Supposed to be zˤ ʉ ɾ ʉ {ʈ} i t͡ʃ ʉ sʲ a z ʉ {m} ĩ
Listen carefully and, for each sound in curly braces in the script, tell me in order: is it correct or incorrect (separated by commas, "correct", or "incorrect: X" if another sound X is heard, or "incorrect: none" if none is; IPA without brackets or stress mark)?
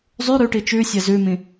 correct, correct